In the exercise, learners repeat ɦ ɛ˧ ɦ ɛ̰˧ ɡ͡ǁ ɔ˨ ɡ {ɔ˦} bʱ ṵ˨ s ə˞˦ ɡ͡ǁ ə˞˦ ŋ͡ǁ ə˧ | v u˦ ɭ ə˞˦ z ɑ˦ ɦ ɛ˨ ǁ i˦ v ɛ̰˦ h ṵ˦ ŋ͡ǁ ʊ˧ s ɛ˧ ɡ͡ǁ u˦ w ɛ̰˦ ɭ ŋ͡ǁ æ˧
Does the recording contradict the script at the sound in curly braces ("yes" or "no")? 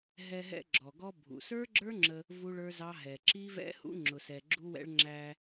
no